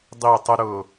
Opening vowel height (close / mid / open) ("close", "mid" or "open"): close